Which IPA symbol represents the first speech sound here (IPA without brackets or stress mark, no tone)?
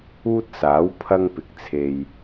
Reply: uː